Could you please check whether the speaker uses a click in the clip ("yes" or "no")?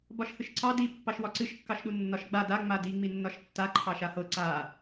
yes